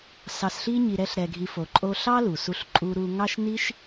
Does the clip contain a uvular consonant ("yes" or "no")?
no